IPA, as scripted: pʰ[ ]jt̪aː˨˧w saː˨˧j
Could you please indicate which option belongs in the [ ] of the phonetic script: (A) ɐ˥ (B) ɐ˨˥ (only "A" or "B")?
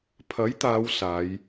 B